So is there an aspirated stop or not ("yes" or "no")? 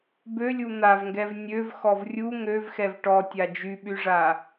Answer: no